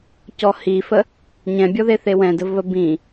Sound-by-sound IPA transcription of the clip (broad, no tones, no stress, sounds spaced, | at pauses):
c ɔ h i f ə | ɲ ɛ̃ bʲ ɔ ð e θ e w ɛ̃ d ə v β ə b ĩ